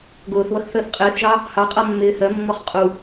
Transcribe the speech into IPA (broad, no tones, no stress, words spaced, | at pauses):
ɡʊːθβʌx θəːθqʼɪːθʒɑ | hɑ qʼʌ mːɪːhɜmːɔχ qʼu